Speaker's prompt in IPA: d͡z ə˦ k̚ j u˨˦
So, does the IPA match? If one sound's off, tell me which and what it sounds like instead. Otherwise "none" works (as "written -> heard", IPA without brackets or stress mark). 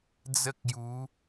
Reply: none